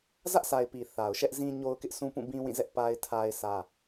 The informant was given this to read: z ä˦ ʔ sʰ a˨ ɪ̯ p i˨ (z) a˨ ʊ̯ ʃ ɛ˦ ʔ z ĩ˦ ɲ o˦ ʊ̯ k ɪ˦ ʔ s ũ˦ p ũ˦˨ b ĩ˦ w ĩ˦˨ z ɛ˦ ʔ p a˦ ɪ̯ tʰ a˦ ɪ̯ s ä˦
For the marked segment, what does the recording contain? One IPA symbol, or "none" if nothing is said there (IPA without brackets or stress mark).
θ